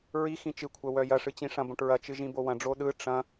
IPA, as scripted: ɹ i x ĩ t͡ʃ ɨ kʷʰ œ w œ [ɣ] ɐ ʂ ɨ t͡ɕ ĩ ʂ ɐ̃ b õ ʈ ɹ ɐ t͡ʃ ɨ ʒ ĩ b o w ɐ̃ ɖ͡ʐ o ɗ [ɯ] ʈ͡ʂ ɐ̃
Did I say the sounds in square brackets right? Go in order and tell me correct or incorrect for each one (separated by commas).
incorrect, correct